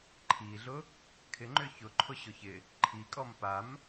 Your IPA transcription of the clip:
ǃʰ i ɮ ʊ | kʰ ɪ ŋ͡ǃ ʏ ç ʊ ǃʰ ʊ ɕ ʊ ç ɪ | ǃʰ i kʼ ɔ m p a m

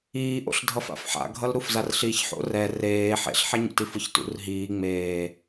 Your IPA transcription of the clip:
iː ʔ o̰ ɬ dʱ ʌ f a̰ f ħ a̰ ɡʱ ʌ l ɾ u f z a r ɬ i ç ħ o̰ r ɛ r eː ħ ḛ ɬ ħ ɛ ɲ ṵ t i f ɯ ç t ṵ r ɦ iː ŋ͡m eː

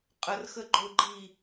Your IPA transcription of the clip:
qʼ ə r x ə ɡ͡ǃ ʊ ɡ͡ǃ i

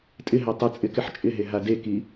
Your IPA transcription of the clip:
tʼ ɪ ɦ ɛ tˤ ɪ t͡sʼ ɪ k ɪ ħ t͡ʃʼ ɪ ɦ e ɦ a d e k i

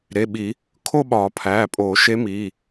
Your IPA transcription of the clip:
ɾ e˩˧˩ ɓ i˨˩˦ | kʰ o˥˧ ɓ ɒː˨˩˦ pʰ æː˩˧˩ pʼ oː˨˩˦ ʃ e˧˥ m iː˩˧˩

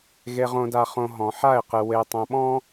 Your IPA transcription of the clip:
ɣ e˨ ʁ õ˨ d a˨ χ õ˨ ɦ ɔ̃˨ ħ a˦˨ ɪ̯ q ɨ˨ w e˨ tˤ õ˨ ɓ ɔ̃˦

